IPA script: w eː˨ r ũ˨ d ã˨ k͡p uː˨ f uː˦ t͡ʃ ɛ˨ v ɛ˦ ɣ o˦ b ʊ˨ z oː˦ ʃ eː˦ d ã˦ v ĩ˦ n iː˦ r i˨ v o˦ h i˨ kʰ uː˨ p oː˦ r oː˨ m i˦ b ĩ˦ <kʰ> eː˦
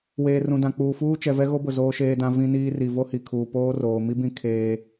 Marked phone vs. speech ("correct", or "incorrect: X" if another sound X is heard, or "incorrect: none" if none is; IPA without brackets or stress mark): correct